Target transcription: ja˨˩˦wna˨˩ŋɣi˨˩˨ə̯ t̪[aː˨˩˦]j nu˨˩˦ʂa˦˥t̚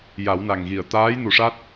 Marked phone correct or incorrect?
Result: incorrect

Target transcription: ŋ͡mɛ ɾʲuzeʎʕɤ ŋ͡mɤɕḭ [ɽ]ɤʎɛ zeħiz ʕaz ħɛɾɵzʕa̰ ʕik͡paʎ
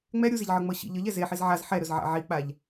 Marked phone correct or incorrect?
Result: incorrect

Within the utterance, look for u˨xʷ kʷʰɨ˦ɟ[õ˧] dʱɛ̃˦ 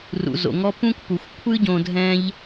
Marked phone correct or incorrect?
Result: correct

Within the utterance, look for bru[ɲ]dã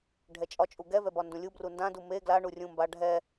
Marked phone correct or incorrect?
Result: incorrect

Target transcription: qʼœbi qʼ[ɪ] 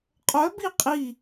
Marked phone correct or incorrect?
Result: incorrect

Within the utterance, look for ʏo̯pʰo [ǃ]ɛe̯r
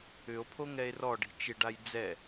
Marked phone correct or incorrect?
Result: incorrect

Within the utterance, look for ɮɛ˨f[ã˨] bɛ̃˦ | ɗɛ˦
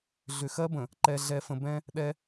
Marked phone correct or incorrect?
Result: incorrect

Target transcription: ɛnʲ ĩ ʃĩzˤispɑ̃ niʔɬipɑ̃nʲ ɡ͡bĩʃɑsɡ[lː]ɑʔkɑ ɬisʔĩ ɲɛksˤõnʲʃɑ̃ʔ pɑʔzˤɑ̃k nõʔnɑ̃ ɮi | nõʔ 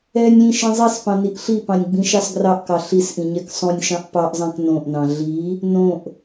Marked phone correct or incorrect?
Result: incorrect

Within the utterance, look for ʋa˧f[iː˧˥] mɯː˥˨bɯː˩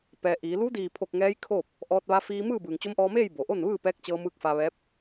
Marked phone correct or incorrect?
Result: incorrect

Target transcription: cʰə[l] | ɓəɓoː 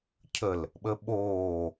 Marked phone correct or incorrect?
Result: correct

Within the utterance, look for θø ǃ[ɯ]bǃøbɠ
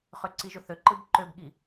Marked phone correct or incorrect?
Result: correct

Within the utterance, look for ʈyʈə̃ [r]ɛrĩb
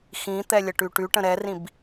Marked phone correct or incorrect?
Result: incorrect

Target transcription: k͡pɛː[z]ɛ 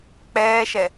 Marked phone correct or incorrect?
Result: incorrect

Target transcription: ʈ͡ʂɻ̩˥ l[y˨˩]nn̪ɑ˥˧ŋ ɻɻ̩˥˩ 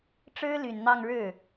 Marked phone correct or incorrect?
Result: correct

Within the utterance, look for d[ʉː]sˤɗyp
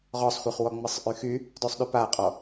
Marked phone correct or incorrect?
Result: incorrect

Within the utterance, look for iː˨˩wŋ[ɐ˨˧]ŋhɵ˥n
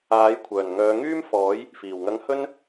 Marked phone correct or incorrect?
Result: incorrect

